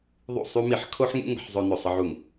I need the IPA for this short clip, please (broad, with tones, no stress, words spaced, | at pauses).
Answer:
ðˤṵ˥˩sˤy˥mi˥˩ħ kʰo˥ħŋṵ˥ ŋə̤˥ħ zˤø˥nø˥˩ sˤə˥ʕu˥˩ŋ